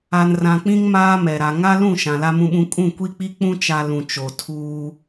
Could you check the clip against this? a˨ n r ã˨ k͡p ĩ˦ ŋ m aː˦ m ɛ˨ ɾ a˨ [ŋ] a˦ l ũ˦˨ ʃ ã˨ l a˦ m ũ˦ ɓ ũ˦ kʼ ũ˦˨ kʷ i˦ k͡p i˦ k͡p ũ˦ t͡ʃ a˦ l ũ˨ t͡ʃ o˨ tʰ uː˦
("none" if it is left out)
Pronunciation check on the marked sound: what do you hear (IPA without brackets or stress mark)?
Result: ŋ